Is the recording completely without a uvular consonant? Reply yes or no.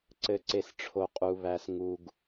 no